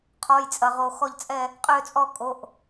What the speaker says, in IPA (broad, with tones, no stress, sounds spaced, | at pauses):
qʰ ɔ˩˧˩ j t͡sʼ ɐ˩ ʁ o˩ x ɔ˧˩ ʎ t͡sʼ ɛ˧˩ | qʼ ø˧˩ t͡sʼ ɔ˧˩ kʼ o˩˧˩ ʔ